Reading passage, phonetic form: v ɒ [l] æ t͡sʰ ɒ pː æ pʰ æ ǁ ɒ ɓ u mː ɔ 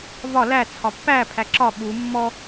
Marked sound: correct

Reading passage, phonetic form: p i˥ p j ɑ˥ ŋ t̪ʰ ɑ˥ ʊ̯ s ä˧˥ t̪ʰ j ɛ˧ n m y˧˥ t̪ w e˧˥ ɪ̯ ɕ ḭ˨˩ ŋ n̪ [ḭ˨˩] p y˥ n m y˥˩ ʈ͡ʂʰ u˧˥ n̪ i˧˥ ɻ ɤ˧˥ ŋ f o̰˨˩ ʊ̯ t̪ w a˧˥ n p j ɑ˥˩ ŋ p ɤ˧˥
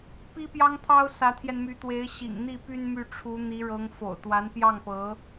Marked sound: incorrect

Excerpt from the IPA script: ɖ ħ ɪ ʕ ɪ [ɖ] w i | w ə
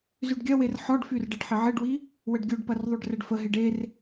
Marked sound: correct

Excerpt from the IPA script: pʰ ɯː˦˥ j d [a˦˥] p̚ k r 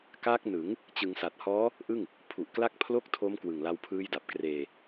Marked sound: incorrect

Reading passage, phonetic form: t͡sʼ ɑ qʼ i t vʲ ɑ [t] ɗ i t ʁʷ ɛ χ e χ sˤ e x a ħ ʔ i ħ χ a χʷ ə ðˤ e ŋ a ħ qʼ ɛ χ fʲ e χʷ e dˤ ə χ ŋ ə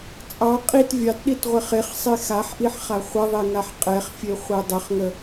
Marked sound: correct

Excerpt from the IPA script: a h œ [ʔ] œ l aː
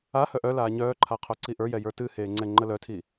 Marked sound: correct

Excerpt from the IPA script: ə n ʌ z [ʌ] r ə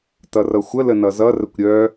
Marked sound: correct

